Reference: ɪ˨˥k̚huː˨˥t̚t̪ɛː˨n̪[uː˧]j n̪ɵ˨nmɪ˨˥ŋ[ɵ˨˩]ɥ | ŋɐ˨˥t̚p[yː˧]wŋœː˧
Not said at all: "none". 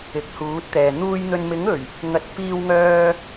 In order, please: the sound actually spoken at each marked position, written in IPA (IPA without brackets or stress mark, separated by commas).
uː˥, ɵ˨˩, iː˧